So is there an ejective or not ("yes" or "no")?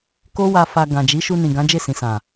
no